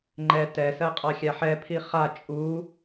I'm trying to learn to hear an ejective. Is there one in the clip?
yes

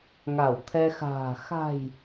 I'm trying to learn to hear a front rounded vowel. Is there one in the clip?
no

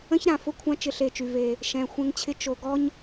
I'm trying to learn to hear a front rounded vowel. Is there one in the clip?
yes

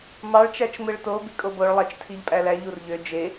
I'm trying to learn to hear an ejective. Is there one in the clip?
yes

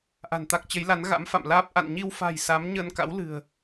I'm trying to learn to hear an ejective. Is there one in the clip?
no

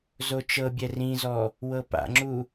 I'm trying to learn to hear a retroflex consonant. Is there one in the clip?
no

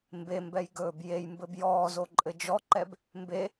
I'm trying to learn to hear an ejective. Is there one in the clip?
yes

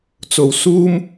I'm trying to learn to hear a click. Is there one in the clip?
no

